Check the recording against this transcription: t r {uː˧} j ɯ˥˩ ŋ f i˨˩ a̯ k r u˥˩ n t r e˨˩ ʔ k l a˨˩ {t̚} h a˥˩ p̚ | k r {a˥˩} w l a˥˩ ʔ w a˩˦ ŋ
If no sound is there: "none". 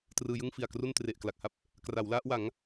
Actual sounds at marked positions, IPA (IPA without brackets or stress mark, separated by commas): ɯː˧, k̚, a˩˦